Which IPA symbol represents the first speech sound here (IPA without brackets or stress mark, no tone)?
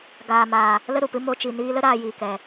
ɡ